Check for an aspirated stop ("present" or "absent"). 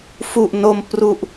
absent